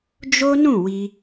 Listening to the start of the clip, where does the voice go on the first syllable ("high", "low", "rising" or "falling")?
high